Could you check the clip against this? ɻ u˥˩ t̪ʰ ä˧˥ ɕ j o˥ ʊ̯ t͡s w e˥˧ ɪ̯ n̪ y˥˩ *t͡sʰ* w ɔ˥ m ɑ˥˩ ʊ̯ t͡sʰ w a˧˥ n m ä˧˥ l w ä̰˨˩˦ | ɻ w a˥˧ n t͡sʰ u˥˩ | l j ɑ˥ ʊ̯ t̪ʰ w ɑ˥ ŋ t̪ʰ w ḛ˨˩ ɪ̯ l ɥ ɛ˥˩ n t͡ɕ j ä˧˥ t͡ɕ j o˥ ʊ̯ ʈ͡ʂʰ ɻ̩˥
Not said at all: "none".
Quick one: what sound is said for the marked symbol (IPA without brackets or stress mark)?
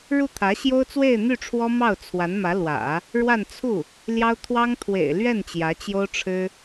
ʈ͡ʂʰ